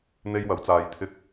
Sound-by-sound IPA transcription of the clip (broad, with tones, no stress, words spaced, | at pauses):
n̪e˥jwɐ˨˥wt͡saː˧jt̪ʰɪ˥k̚